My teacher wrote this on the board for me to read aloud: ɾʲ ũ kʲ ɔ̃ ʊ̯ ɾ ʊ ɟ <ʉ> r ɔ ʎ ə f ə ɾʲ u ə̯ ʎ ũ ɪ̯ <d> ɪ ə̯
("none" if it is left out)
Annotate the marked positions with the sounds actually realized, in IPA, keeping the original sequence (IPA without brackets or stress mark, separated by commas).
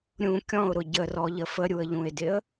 ə, d